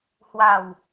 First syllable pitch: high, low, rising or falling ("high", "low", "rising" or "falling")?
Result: low